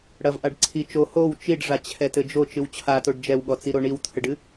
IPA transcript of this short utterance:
ɽ ɐ v ʔ a ɖ ǀʰ i t͡ʃ o h o w t͡ʃ i ɖ ʐ a t͡ɕʰ ɛ t ɘ d͡ʒ o t͡ʃ ɨ w t͡ɕʰ a t o ɖ d͡ʒ ɛ w ɠ ɔ t͡s i ɾ o ɳ i w t̪ʰ ɘ ɖ ɨ

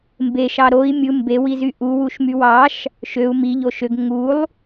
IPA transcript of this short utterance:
m b e ʃ ɑ ɾ o i̯ mʲ ɯ m b e w i z y ʔ u w u ʃ m y w ɑ ʃ | ʃ ø u̯ m i ʎ o ʃ ø ɡ ŋ u lˠ

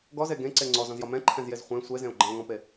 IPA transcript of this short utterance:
ɡ ɔ z e ɡ ẽ ǀ e ŋ͡ǀ ɔ z ɔ̃ z j ɒ m ɛ̃ ǃʰ ɛ̃ z j e z χʷ ɛ̃ sʷ e z ẽ o̯ ɡ͡ǃ ɛ̃ o̯ ŋ ɔ̃ p e

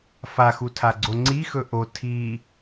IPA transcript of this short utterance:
f a x u tʰ a ɡ͡ǀ o ŋ͡ǀ i x ɵ ʔ o tʰ i

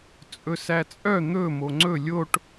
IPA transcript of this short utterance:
t͡sʼ ɵ s æ t͡sʼ œ n̪ ɵ m o ŋ͡ǀ ɵ lʲ o ʈ

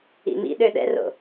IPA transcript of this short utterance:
ḭ m ḭ ɗ ø ɗ ɛ̰ r o̰

